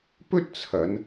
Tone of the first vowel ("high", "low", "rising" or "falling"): high